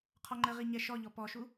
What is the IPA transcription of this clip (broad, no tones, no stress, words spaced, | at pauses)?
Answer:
qʰɔŋ͡ǃəʁi ɲɛʃɔʎɔ pɔʃu